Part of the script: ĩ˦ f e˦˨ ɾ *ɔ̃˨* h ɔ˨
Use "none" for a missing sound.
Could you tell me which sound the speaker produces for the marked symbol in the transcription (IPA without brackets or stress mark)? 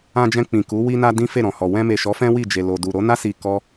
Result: ɔ̃˨